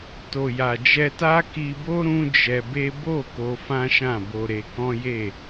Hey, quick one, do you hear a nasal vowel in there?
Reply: yes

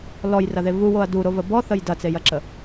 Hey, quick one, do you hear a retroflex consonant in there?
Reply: no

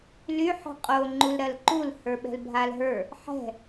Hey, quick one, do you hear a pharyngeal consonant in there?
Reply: yes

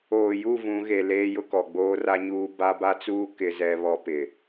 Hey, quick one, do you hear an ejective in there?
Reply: no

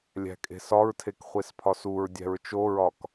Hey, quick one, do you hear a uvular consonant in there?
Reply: yes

